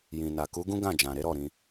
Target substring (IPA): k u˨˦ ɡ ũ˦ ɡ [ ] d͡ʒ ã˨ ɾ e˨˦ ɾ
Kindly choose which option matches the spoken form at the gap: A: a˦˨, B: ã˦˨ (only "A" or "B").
B